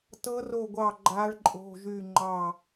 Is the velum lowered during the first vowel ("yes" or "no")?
no